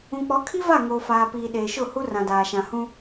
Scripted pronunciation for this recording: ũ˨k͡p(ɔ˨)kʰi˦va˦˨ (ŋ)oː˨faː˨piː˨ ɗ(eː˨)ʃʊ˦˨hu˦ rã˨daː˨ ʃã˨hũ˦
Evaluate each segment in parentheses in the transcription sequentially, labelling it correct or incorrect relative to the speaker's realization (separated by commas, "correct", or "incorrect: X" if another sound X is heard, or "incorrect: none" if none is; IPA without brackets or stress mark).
incorrect: ɔ˨˦, correct, correct